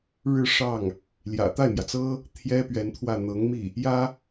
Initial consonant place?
retroflex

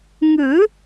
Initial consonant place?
velar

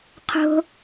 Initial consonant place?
uvular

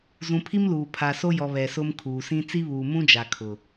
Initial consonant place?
alveolar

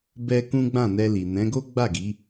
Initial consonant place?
labial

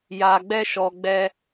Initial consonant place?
palatal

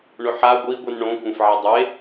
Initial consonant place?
retroflex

